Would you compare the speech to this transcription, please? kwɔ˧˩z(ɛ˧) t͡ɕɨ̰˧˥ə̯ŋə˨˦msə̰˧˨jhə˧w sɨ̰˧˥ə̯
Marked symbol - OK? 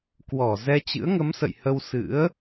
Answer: yes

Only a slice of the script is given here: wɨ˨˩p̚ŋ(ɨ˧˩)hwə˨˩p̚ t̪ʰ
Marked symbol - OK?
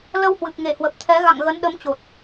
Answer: no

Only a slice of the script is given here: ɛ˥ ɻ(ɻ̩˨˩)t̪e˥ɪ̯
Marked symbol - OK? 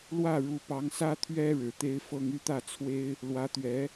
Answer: yes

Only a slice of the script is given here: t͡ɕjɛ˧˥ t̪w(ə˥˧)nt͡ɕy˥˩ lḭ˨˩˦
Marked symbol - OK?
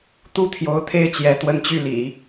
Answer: yes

